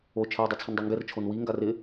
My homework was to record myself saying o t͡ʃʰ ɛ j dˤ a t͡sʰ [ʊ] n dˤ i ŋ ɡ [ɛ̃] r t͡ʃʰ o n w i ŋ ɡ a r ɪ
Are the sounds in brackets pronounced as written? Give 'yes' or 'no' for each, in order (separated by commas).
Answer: yes, no